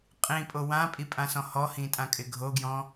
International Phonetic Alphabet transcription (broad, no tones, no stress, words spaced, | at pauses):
qʼĩpʼo wãpʼipʼãsɔ̃ hɔhĩtʼãkʼɪ ɡʱoɡjɔ̃